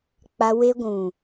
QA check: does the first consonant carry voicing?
no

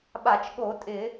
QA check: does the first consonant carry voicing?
yes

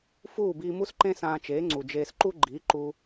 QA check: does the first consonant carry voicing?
no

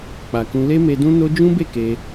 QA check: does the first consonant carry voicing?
no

